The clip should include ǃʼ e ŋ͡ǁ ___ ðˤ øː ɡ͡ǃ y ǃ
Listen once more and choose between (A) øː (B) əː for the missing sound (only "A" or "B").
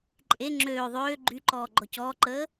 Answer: A